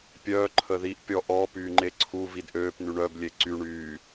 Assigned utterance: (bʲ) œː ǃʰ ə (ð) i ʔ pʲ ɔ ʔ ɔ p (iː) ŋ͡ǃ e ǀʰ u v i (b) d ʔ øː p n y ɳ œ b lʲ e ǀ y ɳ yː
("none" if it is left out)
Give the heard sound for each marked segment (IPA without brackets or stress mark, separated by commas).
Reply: pʲ, ð, yː, none